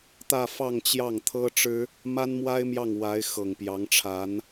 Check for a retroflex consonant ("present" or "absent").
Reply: present